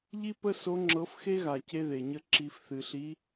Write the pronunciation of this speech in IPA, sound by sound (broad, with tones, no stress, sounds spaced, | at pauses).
ʎ i˥ p ə˥ s o˧˥ ŋ͡ǁ ɤ˧˥ f x e˥ ɣ a˨ c e˥ ð e˨ ɲ ə˥ ǁ i˧˥ f θ ɨ˨ ɬ i˧˥